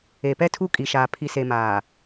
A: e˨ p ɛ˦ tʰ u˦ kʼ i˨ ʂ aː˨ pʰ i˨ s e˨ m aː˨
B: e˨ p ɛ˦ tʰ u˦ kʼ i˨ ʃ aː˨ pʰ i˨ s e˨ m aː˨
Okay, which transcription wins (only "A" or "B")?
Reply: B